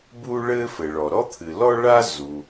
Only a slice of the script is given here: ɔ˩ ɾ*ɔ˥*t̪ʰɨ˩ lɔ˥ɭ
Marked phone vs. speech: correct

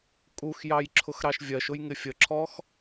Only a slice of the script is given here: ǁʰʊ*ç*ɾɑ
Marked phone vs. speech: incorrect: x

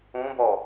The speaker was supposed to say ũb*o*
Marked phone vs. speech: incorrect: ɔ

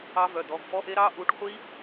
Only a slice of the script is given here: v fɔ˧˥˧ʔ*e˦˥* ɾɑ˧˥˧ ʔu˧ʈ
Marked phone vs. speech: correct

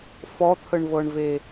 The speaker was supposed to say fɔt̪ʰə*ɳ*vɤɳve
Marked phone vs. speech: correct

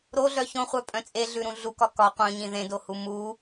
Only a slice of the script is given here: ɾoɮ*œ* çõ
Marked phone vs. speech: correct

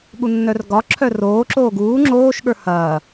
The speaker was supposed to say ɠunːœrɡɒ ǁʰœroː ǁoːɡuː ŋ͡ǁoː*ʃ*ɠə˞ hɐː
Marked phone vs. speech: correct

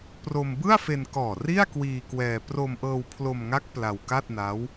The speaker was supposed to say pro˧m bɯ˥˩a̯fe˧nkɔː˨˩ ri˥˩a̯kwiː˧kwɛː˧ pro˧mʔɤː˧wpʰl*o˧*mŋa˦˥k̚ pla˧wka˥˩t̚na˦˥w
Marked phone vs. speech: correct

